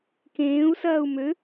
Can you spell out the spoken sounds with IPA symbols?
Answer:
k ẽː u̯ s ɐː u̯ m ø

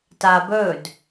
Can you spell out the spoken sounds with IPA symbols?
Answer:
t a b ɵ d

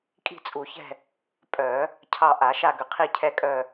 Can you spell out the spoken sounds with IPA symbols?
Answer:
kʼ i̤˦˨ t͡sʼ u˨˩˦ ç ɛ̤˦˨ | pʼ œ˨˩˦ | cʰ ɑ˦˨ ʔ a˨˩˦ ʃ a˦˨ ɡ ʏ˨˩˦ qʰ i˦˨ cʰ ɛ˦˨ kʼ œ˦˨

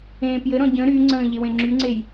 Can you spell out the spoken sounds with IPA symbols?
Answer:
ẽː p j ɘ ɾ ɔ̃ ɟ ə̃ ɾ y ŋ͡ǀ ə̃ː ʎ e w ẽ ŋ͡ǁ y ŋ͡ǀ e j

